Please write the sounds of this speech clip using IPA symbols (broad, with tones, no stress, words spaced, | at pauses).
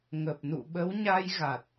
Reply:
ŋə˨˩p̚nṵ˧˨ɓə˨˦w ɲa˧jɣa˨˩t̚